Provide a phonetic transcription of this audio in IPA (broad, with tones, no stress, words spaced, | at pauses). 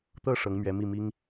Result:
t̪ɤ˥˩ ʂɤ˧˥ŋmɥɛ˧˥mi˥˩ mi˥ŋ